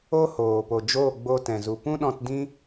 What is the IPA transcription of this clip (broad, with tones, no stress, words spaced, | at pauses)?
o˦hoː˨po˨ d͡ʒoː˦˨ɡ͡bo˧tɛ̃˨ zu˨pũ˦ɗɔ̃˧tdĩ˦